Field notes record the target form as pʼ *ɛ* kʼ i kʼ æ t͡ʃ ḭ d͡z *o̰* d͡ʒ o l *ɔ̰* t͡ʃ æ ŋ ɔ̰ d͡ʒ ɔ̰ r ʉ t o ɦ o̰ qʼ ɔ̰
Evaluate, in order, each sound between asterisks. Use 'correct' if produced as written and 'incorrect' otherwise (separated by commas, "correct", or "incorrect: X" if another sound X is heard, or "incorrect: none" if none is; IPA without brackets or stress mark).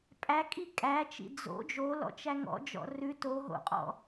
incorrect: æ, correct, correct